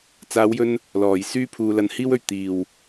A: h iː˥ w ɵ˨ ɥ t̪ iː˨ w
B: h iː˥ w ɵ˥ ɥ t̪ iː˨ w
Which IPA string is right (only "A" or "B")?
A